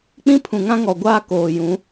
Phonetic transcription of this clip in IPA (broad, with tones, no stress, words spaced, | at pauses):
k͡pĩ˦pʰũ˨ŋã˦ŋɔ˨ ɡʷaː˦koː˨jũ˨˦